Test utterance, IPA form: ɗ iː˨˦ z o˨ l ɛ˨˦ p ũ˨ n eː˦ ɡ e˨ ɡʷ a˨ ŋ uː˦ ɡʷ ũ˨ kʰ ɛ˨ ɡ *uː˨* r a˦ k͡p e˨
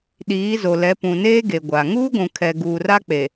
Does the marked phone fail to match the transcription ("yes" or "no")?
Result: no